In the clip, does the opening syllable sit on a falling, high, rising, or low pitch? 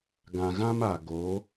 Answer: low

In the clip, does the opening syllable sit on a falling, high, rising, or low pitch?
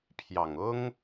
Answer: low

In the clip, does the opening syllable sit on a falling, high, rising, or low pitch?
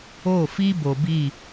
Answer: falling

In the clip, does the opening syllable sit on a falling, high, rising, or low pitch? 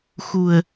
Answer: low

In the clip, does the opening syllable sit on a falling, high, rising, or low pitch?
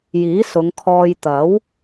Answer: rising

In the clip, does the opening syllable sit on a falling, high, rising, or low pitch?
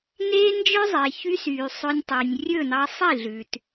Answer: high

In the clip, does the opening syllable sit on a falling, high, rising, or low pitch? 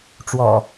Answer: low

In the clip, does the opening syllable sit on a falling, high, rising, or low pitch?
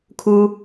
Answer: low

